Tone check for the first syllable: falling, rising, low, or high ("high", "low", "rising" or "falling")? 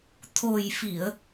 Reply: low